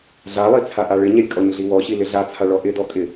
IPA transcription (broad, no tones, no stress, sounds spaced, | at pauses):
ɮ a lˠ i t͡sʰ a ʔ a ɭ ɪ ɲ ɛ lʲ kʼ ɔ ɲ ɮ i w ɔ ɕ i l ɪ ɮ a t͡sʰ a ɭ ɔ ʔ ɪ d ɔ kʼ ɪ